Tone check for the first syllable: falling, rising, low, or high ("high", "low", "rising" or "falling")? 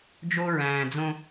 high